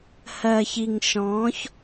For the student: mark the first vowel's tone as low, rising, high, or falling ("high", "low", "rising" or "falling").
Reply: low